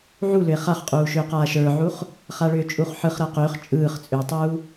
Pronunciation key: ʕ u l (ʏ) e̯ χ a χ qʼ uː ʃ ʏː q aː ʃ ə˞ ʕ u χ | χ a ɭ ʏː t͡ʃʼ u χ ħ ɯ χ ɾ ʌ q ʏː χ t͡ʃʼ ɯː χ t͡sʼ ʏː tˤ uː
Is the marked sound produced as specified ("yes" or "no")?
yes